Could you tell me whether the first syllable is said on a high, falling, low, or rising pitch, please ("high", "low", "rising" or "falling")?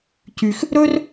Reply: low